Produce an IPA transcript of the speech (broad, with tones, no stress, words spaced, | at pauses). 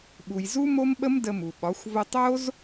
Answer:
ɓu˨jzu˦mo˦mɓə˦m də˧mu˨ɓɒ˨˦xʷ və˧tˤo˦z